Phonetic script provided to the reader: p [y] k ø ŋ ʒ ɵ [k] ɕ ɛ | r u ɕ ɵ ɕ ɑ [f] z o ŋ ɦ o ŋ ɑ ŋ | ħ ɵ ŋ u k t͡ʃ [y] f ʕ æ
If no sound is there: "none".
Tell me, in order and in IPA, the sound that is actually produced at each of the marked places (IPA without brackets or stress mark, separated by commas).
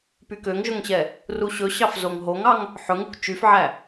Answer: y, ŋ, f, y